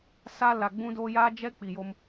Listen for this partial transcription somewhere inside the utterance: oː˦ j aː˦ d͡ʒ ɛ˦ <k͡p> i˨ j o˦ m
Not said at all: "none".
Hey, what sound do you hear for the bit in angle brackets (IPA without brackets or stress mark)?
k͡p